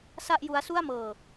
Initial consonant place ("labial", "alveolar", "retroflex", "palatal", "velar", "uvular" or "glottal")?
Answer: alveolar